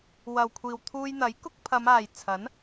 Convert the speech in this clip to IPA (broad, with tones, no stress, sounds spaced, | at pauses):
w ɐ˨ w kʷʰ iː˨ w t̪ʰ uː˧ j n̪ ɐ˨˥ j k ʊ˧ k̚ pʰ ɐ˨˧ m aː˨ j t͡sʰ ɐ˨˥ n